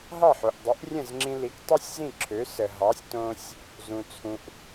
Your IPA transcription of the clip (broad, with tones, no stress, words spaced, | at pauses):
ɦɑ˥˩ħo˩ʔdˤɨ˩˥ʔ rʲə̃˥˩zŋ͡ǁĩ˧li˩˥k tˤɤ˥sʲzĩ˥˩ ǁʰø˩˥sə˩ ɦɑ˩˥sʲ tõ˧sʲ | zũ˩t͡sʰũ˩ʔ